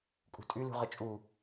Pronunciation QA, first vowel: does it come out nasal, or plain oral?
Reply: oral